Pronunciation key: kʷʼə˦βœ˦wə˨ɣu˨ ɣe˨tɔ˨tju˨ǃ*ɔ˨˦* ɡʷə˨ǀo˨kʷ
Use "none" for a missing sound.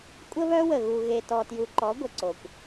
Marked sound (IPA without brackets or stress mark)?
ɔ˨˦